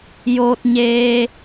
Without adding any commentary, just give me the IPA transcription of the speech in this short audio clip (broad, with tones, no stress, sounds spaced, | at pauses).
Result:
j oː˧ t̚ ɲ eː˧